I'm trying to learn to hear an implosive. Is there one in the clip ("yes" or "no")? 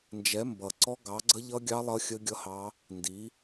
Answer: no